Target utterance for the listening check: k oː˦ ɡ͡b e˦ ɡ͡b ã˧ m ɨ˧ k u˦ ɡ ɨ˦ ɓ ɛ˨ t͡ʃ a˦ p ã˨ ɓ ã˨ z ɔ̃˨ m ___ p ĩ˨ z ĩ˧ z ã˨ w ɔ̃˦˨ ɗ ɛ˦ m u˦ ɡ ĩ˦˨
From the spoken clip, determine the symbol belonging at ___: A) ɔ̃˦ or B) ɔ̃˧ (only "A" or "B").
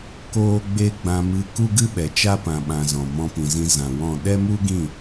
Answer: B